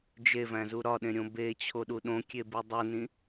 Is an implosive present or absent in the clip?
present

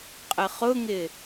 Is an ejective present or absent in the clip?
present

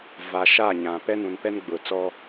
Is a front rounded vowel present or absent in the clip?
absent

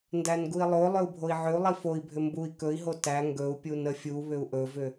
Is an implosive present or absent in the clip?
absent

